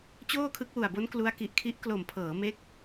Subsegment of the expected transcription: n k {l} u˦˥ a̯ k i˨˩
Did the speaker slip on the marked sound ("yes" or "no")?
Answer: no